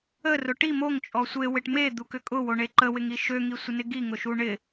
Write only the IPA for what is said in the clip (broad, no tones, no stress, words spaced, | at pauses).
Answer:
ərʊ ʈi moŋt͡ʃʼɔ sʷewɪʈ med̪ukʏ kʼʊwoɳe ǃəwɪŋi ʃøŋisʷənɪ ɡiŋʊʃu ɳɪ